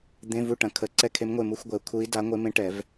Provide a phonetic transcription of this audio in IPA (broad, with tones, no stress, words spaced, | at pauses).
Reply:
d̪ẽ˧˥˧ vu˦˨ʈɐ̃˨˩˦kʰə˨˩˦ ǀɛ˦˨kʰe˧˥mŋʷe˦˨ mu˧˥˧xʷɡʷɛ˨˩˦u̯ kʰu˧˥i̯ da˧˥ ŋʷe˧˥mẽ˧˥ ʈɛ˨˩˦v